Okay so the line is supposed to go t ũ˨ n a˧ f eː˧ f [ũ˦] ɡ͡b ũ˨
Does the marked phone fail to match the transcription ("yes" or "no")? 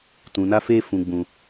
yes